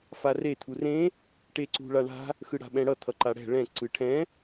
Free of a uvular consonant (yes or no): yes